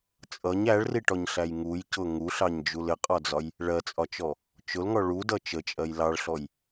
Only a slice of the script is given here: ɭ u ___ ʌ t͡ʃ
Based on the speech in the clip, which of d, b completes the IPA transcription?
d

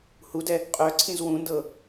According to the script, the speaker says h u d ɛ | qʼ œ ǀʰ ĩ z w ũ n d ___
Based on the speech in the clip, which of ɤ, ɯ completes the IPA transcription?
ɤ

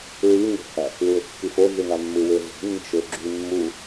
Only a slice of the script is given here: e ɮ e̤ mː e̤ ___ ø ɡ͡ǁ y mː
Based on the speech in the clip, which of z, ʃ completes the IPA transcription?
ʃ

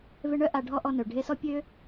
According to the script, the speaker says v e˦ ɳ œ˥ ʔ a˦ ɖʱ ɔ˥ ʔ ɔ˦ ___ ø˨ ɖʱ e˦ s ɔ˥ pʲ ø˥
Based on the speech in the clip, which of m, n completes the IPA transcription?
n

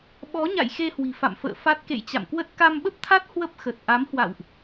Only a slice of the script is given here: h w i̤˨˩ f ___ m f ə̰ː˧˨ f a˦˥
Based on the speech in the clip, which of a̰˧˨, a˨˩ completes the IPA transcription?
a̰˧˨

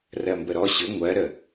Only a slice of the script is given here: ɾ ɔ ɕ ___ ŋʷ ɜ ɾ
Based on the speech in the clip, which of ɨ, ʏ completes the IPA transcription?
ʏ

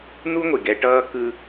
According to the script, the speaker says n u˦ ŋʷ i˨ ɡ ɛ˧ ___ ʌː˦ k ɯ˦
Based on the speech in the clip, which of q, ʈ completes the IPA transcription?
ʈ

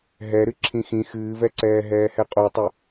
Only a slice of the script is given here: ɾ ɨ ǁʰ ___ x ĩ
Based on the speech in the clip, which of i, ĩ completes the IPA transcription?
ĩ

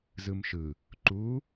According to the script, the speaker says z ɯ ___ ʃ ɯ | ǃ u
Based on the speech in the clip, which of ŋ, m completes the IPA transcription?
m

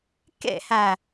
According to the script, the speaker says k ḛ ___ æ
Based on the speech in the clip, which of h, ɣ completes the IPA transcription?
h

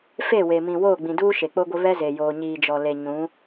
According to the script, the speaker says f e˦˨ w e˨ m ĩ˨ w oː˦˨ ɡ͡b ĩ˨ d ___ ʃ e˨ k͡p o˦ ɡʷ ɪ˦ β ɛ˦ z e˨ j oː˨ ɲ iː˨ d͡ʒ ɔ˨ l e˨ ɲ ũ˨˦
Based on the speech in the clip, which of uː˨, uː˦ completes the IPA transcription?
uː˦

